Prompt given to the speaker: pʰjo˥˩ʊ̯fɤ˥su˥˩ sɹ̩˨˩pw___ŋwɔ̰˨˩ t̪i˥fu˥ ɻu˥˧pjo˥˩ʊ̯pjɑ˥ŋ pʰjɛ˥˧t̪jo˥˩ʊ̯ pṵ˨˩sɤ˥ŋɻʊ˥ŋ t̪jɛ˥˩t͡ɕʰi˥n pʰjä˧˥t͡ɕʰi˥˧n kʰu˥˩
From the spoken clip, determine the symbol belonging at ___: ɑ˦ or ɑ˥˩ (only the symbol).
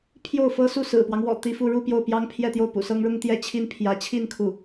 ɑ˦